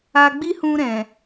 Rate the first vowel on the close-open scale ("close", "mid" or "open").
open